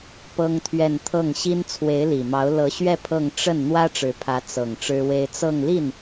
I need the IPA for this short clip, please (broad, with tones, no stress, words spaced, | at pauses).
pɤ˥ŋt̪ʰɥɛ˥˧n t̪ʰɤ˥˩ŋɕi˥n t͡sʰwe˧˥ɪ̯li˨˩mɑ˧˥ʊ̯ lɤ˧˥ɕɥɛ˥˧ pʰɤ˥˧ŋ ʈ͡ʂə˥˩n n̪wä˥ʈ͡ʂɻ̩˧˥pʰä˧˥ t͡sɤ˨˩ŋ ʈ͡ʂɻ̩˥we˥ɪ̯ t͡sɤ˥˧ŋli˥˩n